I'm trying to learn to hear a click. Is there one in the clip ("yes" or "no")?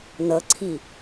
yes